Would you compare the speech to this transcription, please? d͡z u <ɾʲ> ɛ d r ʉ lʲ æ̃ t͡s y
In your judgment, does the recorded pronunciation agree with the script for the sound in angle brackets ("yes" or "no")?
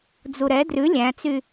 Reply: no